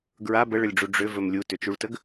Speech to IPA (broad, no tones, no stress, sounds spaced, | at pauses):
ɡ ɹ a b ə ɭ ə lʲ ɖ͡ʐ u ɖ͡ʐ ʏ v ɵ m lʲ u t ʏ t͡ʃ u ɭ t ə ɡ